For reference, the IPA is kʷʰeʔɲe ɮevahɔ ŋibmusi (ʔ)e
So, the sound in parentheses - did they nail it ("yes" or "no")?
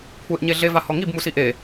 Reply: yes